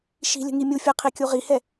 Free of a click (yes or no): yes